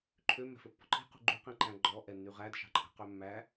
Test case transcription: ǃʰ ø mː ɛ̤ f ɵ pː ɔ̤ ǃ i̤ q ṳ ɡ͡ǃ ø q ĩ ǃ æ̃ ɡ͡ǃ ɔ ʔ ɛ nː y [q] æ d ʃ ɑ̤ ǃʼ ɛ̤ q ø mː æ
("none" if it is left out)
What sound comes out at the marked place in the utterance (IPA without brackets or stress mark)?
ʁ